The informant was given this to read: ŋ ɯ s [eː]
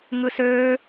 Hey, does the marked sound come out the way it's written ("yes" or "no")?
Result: no